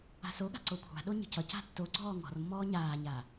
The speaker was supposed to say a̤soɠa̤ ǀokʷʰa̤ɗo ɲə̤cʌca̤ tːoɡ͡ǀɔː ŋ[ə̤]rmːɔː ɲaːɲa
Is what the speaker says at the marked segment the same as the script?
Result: no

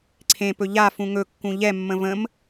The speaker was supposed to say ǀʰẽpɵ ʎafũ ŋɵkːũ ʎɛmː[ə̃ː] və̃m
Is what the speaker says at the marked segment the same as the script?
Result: no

